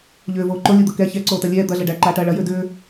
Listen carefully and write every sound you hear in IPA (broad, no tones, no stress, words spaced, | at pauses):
ʎʏːvoː ǃolʲod̪ɤ kɛ çɛǀoːtɐ lʲɛː d̪ɐɮɐ ɖæǃaːʈɐː ɭɐjʏː dʏː